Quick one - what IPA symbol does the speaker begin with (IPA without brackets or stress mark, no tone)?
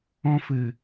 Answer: ɔ̃